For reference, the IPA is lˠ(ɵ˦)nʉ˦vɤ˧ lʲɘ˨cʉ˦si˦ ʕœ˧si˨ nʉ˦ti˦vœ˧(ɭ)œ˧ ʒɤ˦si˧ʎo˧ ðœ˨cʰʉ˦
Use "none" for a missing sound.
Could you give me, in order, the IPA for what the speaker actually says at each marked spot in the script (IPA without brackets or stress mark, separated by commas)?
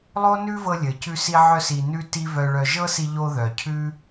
o˦, ɭ